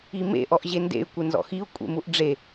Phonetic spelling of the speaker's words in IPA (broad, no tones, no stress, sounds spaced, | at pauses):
i m ḛ ʔ ɔ ʔ ʑ e n d ḛ y̯ kʷ ɪ n z ɔ̰ x i u̯ kʷʼ ḛ m u ʔ ɖ͡ʐ e